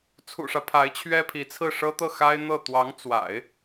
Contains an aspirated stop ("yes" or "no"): yes